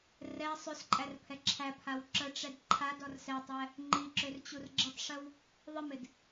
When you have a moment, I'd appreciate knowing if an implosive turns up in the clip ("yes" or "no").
no